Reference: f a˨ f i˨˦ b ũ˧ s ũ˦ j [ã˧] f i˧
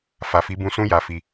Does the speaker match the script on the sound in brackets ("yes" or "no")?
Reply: no